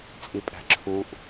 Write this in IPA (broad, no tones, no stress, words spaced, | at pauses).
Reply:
t͡sʼipʼæ̤ǁʰuʔ